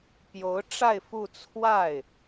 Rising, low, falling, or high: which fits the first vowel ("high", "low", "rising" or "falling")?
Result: rising